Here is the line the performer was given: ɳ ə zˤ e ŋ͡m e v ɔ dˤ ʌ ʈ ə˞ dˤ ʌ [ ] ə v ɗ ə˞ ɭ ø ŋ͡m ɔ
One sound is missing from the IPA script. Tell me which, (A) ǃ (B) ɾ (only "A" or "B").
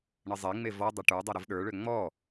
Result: B